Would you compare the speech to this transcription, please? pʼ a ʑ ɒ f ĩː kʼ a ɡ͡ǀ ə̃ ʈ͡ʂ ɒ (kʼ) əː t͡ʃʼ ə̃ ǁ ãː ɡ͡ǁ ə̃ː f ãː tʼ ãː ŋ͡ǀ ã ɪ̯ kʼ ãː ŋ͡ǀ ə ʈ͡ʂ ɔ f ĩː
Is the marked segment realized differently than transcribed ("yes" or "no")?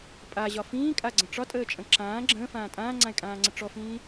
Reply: yes